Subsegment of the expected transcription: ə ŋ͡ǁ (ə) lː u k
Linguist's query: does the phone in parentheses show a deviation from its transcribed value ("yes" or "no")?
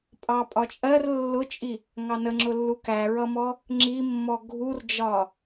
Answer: yes